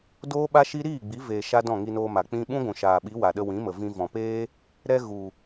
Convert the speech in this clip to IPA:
d oː˦ ɓ a˦ ʃ i˦ ɾ iː˦˨ ɡ͡b i˨˦ v eː˧ ʃ a˦ d ɔ̃˦˨ ŋ i˧ n oː˧ m a˨ k͡p ĩ˧ ɓ ũ˦ ɡʷ ũ˨ ʃ aː˨ ɓ i˨˦ w a˨ ɗ ə˧ w ĩ˨˦ m ə˨ v ĩ˧ v ɔ̃˨ p eː˦ | ɾ ɛ˦ ɣ u˨

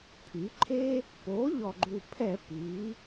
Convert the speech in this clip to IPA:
pʰ y˩˧ ǃʰ e˦ | p o˩˥ ʎ ɔ˨˩ ɡ͡ǃ u˨˩ pʰ ɛ˧˩˧ p iː˩˧

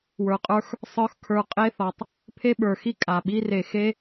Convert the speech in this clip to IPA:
w ə˞˨ qʼ ə˞˦ x | sˤ ə˞˦ x kʰ ə˞˨ qʼ e˦ θ ɔ˩ tˤ | pʰ e˥ ɓ ə˞˩ x i˥ kʼ a˩ ɓ i˥ r e˨ x e˥

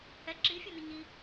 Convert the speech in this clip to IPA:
h ɛ ǁ i fʲ ɔ n ʊ ɲ i

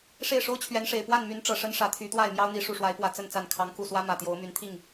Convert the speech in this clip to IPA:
ʂ e˥˨ ɪ̯ ʂ o˦ ʊ̯ t͡ɕʰ ɥ ɛ˨˦ n ʂ e˨˩ ɪ̯ p w a˥˨ n m y˨˦ n ʈ͡ʂ ɤ˨˩ ʂ ə˦ n ʂ ä˨˦ t̪ʰ y˨˦ t̪ w a˥˨ ɪ̯ m j ɑ˦ ʊ̯ n̪ i˨˦ ʂ u˨˩ ʂ w a˨˦ ɪ̯ p w ä˨˩ t͡s ə˥˨ n t͡s a˥˨ n kʰ ɑ˨˦ ŋ k u˨˩ s w ä˦ m ä˨˩ t̪ j o˨˦ ʊ̯ m y˨˦ n t̪ʰ i˥˨ ŋ

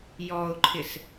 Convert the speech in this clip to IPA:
j ɔ ʊ̯ ǃʰ ɪ s

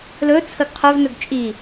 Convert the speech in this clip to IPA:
l ɵ t͡sʰ ə ɡ qʰ ɵ v n ɵ ɡ t͡ʃʼ i

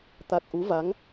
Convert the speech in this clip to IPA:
t̪ a˨˩ k̚ ʔ u˨˦ v a˨˦ ŋ

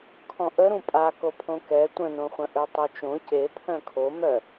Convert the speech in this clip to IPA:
kʰ ɔ̃ ʔ ə ɾ ũ pʼ a k o pʰ õ k ɛ tʷ ə̃ n õ χʷ ə̃ ʔ ø tˤ o t͡ʃ õ c e pʰ œ̃ kʰ o m œ

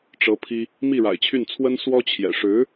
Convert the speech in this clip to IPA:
ʈ͡ʂ ɤ˧˥ pʰ i˥ | m i˥˩ ɻ a̰˨˩ ɪ̯ t͡ɕʰ y˥˩ n t͡sʰ w ə˥ n s w ɔ˥ t͡ɕʰ j ɛ̰˨˩ ʂ ɻ̩˧˥

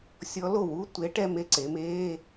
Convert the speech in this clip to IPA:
sʲ ɔ˧˥ l o˥˩ w u˧˥˧ tʷ e˧˥ ʈ ɛ˥˧ m e˧˥˧ ǀ e˩˧ m eː˧˥˧

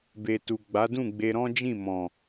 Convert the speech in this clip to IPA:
b e˨ t u˨ ɡ͡b a˨˦ d ũ˦˨ ɡ͡b e˧ ɾ ɔ̃˦ d͡ʒ ĩ˦˨ m ɔ̃˨

